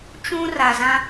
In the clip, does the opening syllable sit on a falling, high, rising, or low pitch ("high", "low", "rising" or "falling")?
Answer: high